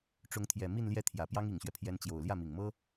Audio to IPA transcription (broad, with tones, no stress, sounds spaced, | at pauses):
ʈ͡ʂ ʊ˧˥ ŋ t̪ʰ j ɛ˨˩ m i˥˧ n l j ɛ˥˩ t̪ʰ j ä˨˩ p j ɑ˥ ŋ i˨˩ ŋ ɕ ɥ ɛ˦ pʰ j ɛ˧˥ n t͡ɕ j o˨˩ ʊ̯ l j ä˥˩ m i˨˩ ŋ m ɤ˥